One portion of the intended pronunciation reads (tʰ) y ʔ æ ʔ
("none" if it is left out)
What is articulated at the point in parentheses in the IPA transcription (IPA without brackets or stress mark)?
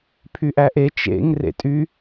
pʰ